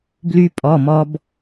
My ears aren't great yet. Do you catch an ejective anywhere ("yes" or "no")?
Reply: yes